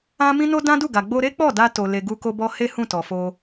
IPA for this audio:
ã˦ m ĩ˦ n o˦ d ã˦ d u˦˨ ɡ a˨ ɡ͡b o˧ ɾ e˦ k͡p ɔ˦˨ d a˧ t o˨ l e˨ ɡ u˧ k o˧ b ɔ˧ h e˦ h ũ˦˨ t ɔ˨ f o˧

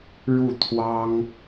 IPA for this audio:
ɻ u˥˩ t̪ʰ w ɑ˥ ŋ

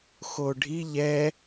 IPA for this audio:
x o ɖʱ i ʎ ɛ

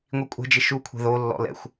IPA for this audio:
ŋʷ i kʷʼ ɛ̤ d͡ʒ ɪ ʃ u kʷʰ e̤ ð o lː ɔ̰ l ɛ̰ xʷ

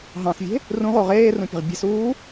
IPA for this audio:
ɦ ɑ̃ s vʲ e̤ | r ũ ʁ o ʁ eː r ũ pʲ e̤ ʁ bʲ e̤ s uː

